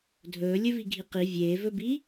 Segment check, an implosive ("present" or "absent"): absent